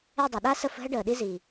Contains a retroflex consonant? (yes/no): yes